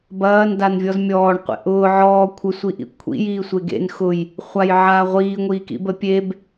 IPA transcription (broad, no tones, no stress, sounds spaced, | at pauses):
b ɐː n d a n vʲ ɔ z mʲ ɔː ɳ qʷ ḛ ʔ ʊː ʕ ɔː kʷʰ ə sʷ i ʔ ḭ kʷʰ ḭ j iː sʷ e ɡ ḛ n x ʊ j | χʷ a j ʕ aː ʁʷ iː ŋʷ iː k ḭ b ə pʲ e b